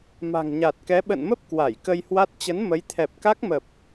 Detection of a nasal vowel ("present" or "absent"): absent